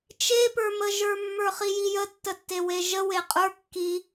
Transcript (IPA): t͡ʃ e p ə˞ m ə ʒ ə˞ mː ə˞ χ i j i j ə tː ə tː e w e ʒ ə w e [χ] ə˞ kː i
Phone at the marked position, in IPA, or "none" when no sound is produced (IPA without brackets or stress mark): qʼ